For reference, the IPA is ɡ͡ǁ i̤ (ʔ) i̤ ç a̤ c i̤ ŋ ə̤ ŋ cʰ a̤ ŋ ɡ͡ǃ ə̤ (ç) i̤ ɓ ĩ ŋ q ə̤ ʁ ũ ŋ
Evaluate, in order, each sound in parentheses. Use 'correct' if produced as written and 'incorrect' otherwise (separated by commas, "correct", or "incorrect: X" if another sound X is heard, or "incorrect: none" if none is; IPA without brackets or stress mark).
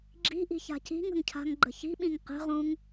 correct, correct